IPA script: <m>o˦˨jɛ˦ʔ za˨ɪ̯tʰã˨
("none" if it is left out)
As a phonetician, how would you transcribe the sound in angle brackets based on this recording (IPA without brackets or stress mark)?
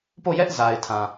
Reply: p